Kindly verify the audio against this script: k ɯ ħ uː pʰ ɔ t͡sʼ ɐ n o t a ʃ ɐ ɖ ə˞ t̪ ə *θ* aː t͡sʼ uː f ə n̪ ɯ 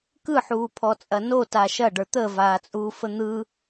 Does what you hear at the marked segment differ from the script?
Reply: yes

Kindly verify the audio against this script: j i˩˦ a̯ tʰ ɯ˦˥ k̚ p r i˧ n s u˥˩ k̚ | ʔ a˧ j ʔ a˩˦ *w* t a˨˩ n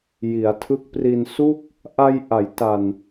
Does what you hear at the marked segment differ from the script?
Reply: yes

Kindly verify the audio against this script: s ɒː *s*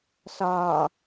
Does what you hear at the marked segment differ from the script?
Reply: yes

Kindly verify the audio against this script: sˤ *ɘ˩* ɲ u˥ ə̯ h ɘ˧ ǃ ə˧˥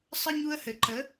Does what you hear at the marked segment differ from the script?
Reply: yes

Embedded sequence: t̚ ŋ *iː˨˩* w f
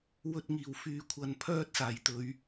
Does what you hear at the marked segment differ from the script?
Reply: no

